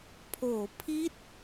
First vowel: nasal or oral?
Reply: oral